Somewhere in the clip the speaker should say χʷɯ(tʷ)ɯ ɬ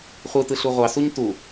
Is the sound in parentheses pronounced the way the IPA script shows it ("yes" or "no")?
no